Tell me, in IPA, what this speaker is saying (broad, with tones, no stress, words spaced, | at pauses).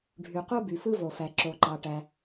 ɖʱy˩qu˥ by˩fɯ˥vo˩fæ˩ ǁo˩ǃɑ˩ʈæ˩